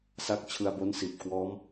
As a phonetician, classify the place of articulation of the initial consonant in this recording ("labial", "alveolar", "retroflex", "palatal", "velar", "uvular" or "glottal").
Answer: alveolar